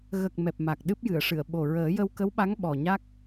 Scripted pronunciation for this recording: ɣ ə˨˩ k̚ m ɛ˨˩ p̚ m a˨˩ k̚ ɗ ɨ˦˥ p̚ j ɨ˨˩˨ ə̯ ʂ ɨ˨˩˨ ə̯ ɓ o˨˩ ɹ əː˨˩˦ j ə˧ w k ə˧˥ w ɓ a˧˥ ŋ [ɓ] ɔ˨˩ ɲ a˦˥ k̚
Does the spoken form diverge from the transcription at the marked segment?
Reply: no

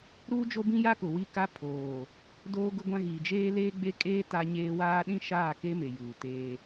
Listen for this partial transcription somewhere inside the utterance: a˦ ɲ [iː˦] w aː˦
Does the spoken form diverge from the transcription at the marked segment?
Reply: yes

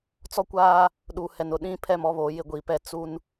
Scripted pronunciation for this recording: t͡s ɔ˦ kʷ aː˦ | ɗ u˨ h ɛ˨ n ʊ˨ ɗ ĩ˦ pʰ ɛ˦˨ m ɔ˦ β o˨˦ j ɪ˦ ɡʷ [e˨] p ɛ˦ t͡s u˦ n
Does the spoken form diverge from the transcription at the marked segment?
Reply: yes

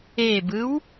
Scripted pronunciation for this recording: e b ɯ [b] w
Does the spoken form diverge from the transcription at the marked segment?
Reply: yes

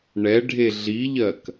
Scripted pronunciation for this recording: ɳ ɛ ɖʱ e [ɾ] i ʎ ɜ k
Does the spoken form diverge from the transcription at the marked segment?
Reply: yes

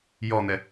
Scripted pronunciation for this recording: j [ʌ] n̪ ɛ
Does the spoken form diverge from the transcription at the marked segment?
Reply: yes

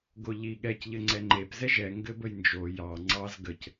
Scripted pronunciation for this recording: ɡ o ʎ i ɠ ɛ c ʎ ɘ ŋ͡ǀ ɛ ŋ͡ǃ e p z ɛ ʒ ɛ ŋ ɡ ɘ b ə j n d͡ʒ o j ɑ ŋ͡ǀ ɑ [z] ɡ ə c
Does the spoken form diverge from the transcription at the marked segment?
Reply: no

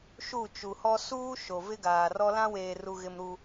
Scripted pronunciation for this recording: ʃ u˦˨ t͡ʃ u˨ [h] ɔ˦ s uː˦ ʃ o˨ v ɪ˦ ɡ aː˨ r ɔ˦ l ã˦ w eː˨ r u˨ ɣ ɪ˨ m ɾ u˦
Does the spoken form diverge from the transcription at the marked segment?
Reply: no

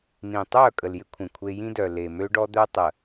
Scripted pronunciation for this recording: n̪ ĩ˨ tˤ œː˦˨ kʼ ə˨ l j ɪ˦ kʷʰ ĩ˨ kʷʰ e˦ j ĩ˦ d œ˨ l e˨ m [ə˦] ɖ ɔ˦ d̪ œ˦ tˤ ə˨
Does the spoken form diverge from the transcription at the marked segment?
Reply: yes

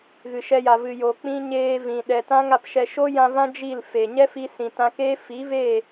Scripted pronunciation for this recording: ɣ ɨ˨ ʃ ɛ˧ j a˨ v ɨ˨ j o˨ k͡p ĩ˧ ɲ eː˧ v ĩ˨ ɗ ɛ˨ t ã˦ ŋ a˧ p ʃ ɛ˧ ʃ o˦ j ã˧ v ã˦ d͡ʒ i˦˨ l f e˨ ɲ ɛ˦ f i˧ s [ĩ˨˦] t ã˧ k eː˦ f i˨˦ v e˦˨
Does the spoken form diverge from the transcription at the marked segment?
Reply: yes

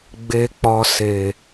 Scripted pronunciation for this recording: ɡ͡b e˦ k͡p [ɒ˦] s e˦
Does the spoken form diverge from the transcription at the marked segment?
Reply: no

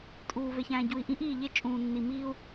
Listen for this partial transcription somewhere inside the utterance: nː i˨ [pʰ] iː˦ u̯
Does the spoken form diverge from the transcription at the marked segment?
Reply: yes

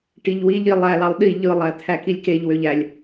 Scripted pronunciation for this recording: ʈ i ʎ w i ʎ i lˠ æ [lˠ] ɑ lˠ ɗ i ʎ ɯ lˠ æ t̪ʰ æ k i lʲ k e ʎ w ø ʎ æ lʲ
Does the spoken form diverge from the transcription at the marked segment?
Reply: yes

